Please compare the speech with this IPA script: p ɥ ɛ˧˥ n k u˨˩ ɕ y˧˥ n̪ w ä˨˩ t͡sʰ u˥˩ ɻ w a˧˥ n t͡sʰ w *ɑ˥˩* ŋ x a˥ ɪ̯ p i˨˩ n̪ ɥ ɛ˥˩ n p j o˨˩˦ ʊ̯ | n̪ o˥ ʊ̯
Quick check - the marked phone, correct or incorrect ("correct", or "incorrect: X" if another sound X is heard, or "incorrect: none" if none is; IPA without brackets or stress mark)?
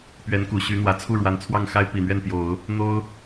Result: correct